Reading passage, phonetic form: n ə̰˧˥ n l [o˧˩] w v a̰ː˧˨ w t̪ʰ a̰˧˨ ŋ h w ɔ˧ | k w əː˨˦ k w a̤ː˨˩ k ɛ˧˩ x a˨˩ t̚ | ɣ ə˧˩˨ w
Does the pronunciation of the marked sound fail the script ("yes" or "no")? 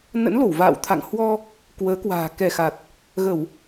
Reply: no